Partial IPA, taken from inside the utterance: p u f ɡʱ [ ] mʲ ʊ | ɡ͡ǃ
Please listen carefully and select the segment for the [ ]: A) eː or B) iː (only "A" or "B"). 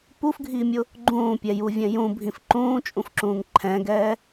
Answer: B